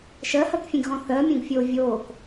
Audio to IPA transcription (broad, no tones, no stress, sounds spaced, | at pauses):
ʃ ɜ h ɜ k fʲ ẽ ɡ ɣ ɔ̃ θ ɜ mʲ õ ɡ fʲ oː vʲ oː k